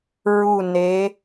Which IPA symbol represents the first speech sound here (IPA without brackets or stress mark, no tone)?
ɹ